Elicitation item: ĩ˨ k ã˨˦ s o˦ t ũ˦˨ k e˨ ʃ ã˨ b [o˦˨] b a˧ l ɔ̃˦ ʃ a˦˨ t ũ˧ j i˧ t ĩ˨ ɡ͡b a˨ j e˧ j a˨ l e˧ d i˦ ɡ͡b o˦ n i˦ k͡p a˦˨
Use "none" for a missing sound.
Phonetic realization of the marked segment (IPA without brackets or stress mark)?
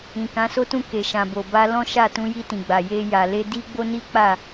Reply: o˨